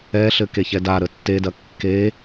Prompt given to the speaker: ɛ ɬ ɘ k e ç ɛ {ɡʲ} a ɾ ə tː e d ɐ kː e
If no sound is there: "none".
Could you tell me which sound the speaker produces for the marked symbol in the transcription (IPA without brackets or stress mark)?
d